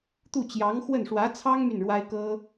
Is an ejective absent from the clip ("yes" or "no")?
yes